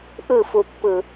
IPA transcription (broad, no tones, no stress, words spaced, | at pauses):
ʔɯfupːɯ